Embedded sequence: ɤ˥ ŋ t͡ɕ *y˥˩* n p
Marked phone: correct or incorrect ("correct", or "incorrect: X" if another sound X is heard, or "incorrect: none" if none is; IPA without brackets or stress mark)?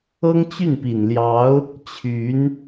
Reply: correct